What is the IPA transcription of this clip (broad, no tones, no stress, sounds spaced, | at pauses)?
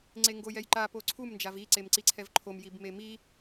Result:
ŋ͡ǀ e ŋ ɡ o j ɛ j ǃ a p o ǀʰ u m n d͡ʒ a v i ǀ e m ǀ i ǀʰ ɛ v ǃʰ o m j i b m e m i